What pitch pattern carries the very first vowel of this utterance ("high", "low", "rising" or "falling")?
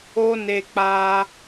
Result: high